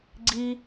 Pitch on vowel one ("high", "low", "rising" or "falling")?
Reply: high